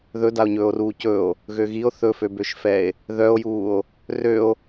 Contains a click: no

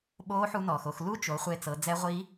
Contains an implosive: yes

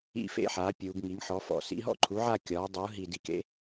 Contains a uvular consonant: no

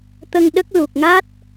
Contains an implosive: yes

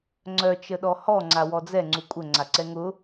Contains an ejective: yes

